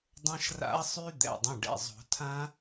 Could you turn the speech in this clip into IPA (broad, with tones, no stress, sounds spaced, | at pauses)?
dˤ ɐ̃˦˥ ʃ r a̰˦˥ ɐ̯ sˤ y˦˥ d̪ ɛ̰˩˧˩ dˤ ɐ̃˩˧˩ ɖ ɛ̰˩˧˩ zˤ o̤˨˩˦ tʰ ã˦˥